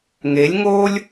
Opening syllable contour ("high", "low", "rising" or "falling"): rising